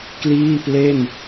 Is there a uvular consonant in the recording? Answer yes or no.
no